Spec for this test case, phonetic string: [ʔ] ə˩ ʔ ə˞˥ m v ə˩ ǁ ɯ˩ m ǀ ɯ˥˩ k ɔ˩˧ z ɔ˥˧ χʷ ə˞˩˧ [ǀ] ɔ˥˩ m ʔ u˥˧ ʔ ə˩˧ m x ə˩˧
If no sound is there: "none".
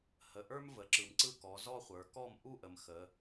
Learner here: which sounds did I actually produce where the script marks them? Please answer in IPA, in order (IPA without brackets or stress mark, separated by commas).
h, k